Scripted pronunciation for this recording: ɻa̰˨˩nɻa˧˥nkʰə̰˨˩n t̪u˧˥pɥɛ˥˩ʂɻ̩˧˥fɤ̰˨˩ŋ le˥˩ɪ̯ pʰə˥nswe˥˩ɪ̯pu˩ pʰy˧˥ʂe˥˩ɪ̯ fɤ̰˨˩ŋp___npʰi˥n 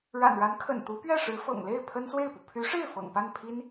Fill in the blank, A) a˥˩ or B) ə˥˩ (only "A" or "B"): A